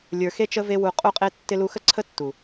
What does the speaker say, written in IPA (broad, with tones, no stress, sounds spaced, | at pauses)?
lʲ ə˞˨ x e˦ t͡ʃ ə˦ v e˦ w u˧ qʼ u˦ qʼ e˦ tː ɪ˧ l u˧ x ə˦ ǀʰ ə˦ tː u˨